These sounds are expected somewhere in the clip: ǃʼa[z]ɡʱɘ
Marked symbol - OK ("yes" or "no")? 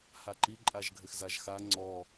no